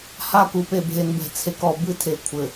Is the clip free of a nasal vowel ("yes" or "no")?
yes